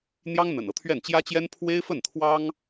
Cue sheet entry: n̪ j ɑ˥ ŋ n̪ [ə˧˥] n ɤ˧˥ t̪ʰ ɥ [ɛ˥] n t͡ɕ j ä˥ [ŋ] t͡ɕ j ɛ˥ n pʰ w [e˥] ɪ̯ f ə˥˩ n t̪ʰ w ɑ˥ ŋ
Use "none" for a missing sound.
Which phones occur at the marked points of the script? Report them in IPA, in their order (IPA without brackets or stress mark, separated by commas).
ə̰˨˩, ɛ˥˩, none, e˥